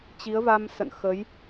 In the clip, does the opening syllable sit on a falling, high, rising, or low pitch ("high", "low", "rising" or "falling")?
rising